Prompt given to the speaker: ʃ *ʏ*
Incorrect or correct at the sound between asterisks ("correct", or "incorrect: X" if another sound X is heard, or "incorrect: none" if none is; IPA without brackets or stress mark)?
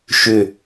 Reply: correct